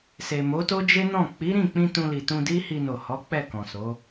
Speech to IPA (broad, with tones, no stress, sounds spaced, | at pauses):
s e˨ m o˨˦ t o˦ d͡ʒ e˦ n ɔ̃˦˨ k͡p i˨˦ ɾ ĩ˦˨ k͡p ĩ˧ t ũ˧ l i˨ t ũ˧ d i˦ h i˧ n o˨ h ɔ˨˦ k͡p ɛ˦˨ k ɔ̃˨ s o˨˦